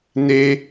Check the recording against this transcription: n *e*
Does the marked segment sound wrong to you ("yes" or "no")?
no